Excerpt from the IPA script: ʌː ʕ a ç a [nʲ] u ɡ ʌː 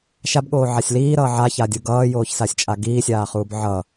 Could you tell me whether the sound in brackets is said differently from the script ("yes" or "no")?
yes